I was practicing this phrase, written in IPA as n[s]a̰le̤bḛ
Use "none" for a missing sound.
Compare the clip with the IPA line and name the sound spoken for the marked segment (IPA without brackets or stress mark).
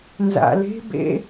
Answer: z